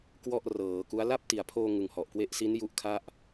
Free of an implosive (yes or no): yes